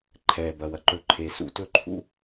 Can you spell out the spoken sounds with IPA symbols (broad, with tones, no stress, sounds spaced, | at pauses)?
ǃʰ ɛː˨ b ɐ˨ w ɐ˨ ǃ ɵ˨ ǃʰ e˨ s ṵ˧ t ɵ˦ ǃʰ ṵ˦